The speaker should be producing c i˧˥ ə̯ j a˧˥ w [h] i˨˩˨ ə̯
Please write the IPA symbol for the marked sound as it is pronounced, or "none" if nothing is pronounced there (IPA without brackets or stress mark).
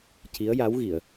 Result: ɣ